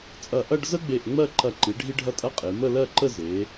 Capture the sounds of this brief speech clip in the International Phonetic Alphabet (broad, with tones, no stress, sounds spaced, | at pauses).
t͡sʼ ɐ˧˩ ʔ ɐ˥˧ ɖ z ə˥ ɡ͡b e˧˩ ʔ ŋ͡m ɜ˥˧ ǃ ɐ˧˩ ǃ i˩˧ ɖʱ i˥ ɖʱ ɐ˥ tʼ ɐ˥ qʼ e˩˧ m ə˥˧ l ɜ˥˧ ǃ ə˥˧ z e˩˧